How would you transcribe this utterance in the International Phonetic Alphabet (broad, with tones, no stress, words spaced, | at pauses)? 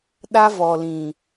ɗa˦vɔ˨lĩ˨